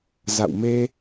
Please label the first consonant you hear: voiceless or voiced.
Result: voiced